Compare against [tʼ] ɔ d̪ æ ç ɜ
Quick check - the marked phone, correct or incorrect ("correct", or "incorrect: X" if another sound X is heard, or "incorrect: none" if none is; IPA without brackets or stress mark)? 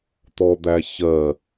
incorrect: t̪